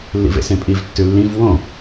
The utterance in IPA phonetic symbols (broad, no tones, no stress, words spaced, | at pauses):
lːḭvḛsẽpʼiv tːʉlːĩv wõ